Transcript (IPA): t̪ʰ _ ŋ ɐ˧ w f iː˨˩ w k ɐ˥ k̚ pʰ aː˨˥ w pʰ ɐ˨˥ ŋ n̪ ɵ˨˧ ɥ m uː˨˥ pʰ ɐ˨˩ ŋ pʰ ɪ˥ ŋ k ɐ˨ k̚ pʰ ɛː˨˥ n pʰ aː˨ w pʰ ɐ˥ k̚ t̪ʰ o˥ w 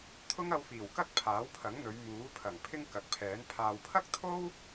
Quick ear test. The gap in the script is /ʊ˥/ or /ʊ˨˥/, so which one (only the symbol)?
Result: ʊ˥